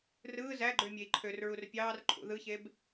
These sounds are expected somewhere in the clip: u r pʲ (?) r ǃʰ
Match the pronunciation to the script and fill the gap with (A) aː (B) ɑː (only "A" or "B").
B